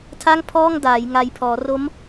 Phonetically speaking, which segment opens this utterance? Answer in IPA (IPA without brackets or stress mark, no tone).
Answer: tʰ